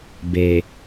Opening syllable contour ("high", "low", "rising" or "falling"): low